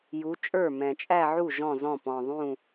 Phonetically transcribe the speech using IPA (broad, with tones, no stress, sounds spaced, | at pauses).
j u˨˦ t͡ʃʼ ə˞˥˩ m ɛ̃˨˩ t͡ʃʼ æ˥˧ ʕ u˥˩ ʒ ɔ̃˥˩ z ɔ̃˥˩ p ɔ̃˨˩ ðˤ ũ˥˩